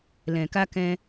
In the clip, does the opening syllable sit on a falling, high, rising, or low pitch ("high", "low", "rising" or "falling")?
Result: low